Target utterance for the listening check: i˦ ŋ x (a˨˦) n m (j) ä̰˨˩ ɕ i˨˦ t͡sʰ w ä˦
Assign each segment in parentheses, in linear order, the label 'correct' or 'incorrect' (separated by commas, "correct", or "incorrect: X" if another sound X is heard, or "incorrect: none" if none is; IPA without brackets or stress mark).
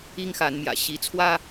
correct, correct